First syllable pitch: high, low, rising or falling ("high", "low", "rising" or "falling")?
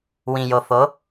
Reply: low